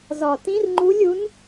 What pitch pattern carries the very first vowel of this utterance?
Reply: low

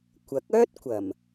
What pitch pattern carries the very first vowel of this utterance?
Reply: rising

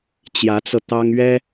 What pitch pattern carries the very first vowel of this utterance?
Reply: rising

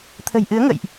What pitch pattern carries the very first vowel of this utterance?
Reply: low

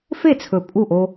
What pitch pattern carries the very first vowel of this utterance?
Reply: falling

